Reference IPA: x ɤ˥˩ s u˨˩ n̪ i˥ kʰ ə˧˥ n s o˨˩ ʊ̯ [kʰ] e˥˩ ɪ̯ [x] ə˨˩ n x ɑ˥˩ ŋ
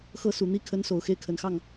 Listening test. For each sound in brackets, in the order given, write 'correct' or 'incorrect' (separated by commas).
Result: incorrect, incorrect